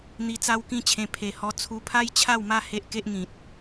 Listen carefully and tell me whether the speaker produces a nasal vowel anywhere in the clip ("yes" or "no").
yes